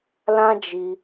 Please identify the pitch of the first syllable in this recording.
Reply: high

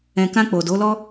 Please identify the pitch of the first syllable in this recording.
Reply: low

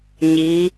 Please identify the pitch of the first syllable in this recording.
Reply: rising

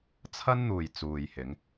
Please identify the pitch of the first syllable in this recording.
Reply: high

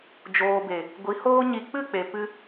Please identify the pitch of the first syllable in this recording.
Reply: low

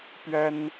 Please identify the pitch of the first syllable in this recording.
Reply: high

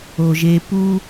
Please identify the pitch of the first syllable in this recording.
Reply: low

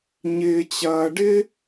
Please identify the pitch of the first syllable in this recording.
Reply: high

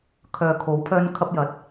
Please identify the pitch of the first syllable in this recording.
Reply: low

